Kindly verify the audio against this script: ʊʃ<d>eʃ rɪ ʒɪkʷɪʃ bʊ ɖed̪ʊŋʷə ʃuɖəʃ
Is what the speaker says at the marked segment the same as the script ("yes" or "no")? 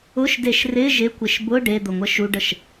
yes